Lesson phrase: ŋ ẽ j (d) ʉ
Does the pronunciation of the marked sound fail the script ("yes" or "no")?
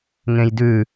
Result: no